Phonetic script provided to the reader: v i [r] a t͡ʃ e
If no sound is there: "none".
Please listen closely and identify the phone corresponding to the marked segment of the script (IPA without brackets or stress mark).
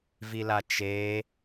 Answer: l